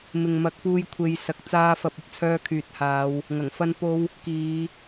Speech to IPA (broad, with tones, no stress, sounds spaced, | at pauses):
m ɪ˨ ŋ m ɐ˨˥ k̚ p uː˧ j kʷʰ e˨˧ j s ɐ˨ k̚ t͡s aː˨˧ f ɐ˨ p̚ ɵ˥ t̚ t͡sʰ œː˧ kʰ yː˨ t̚ h aː˨˧ w | ŋ ɐ˨˩ ŋ f ɐ˧ n p o˧ w | k iː˨˧